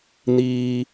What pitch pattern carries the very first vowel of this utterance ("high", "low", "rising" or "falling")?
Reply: low